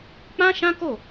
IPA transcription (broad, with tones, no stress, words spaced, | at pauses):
k͡pã˦ʃã˦ko˦˨